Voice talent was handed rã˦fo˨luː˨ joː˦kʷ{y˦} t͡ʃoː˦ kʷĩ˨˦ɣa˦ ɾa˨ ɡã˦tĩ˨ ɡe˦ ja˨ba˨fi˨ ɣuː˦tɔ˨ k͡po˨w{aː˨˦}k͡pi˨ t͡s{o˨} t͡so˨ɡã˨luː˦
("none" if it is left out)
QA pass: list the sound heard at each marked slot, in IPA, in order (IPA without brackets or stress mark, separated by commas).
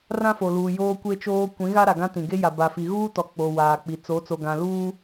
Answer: e˦, aː˨, o˨˦